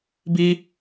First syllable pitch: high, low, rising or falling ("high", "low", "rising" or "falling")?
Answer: high